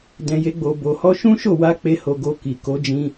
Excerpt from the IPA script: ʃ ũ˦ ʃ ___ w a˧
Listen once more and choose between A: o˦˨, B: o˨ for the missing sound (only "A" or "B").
A